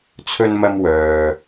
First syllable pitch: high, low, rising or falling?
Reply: high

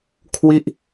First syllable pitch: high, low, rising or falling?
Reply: falling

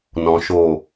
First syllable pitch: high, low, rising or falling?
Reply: low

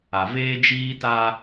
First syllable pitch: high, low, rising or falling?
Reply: low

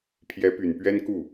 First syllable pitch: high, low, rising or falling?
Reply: rising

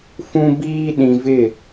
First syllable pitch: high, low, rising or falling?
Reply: high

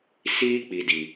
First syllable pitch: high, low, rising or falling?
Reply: high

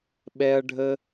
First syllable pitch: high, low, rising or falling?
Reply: high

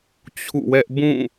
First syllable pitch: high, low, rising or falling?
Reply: falling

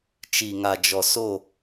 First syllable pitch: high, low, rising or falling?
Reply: low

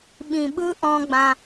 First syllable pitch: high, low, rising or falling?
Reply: low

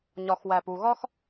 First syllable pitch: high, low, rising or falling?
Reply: low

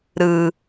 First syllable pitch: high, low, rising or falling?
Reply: low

